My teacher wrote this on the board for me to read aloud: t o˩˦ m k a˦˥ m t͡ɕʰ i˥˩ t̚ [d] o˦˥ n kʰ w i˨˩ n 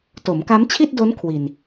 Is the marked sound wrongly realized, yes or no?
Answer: no